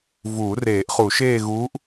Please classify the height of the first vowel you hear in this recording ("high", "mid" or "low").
high